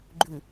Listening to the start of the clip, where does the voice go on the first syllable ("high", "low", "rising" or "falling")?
low